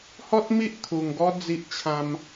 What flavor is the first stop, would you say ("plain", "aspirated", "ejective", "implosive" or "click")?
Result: plain